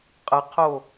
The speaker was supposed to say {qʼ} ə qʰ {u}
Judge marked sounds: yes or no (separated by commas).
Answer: yes, no